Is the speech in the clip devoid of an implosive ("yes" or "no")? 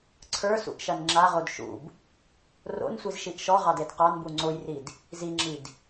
yes